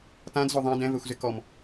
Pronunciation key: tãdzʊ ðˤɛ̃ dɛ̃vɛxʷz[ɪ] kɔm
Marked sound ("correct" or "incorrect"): correct